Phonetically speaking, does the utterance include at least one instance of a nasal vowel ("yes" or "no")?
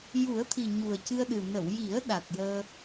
no